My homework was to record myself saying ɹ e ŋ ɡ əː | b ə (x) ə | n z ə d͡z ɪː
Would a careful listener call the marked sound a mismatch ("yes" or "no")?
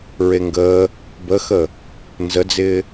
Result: no